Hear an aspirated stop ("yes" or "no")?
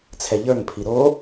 yes